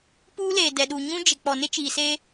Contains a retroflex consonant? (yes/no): no